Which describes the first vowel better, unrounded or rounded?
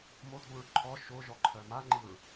rounded